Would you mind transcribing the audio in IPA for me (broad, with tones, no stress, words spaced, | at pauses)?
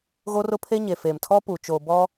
ɣoː˦rʊ˦pʰe˦ ɲeː˨feː˨mtʰɔ˦puː˨ t͡ʃoː˨ bɔ˦